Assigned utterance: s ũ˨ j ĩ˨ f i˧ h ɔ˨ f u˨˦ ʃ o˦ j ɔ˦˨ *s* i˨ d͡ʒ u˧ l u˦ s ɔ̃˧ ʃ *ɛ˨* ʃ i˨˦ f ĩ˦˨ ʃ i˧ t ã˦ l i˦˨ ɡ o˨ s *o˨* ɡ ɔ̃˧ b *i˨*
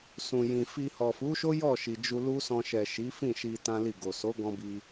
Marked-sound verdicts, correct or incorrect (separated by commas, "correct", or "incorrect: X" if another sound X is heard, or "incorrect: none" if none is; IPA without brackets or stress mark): incorrect: ʃ, correct, incorrect: o˨˦, incorrect: i˧